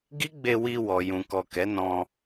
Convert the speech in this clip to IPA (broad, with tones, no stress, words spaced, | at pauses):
ɡi˦ɡ͡be˧ wi˧ wɔ˨jũ˨kɔ˨ kɛ˨˦nɔ̃˧